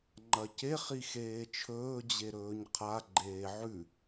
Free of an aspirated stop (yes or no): no